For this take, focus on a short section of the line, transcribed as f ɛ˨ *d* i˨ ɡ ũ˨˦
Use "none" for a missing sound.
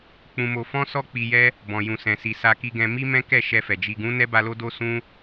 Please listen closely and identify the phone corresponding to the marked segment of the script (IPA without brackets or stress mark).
d͡ʒ